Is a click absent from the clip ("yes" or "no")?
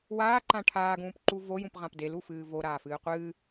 no